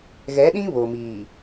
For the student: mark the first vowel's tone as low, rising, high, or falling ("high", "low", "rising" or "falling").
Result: rising